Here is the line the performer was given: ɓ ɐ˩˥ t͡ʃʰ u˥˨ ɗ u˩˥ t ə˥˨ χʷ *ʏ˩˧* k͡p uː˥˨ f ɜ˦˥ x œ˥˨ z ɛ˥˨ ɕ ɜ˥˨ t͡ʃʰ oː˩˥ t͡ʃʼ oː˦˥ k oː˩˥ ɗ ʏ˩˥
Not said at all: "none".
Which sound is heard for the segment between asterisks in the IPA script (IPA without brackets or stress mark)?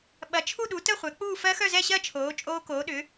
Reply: ɛ˩˧